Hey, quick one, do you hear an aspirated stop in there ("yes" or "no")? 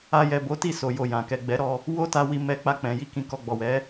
no